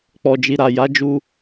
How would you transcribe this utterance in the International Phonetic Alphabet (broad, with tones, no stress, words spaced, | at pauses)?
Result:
k͡pɔ˨d͡ʒi˨ɾa˨ ja˨˦ d͡ʒu˧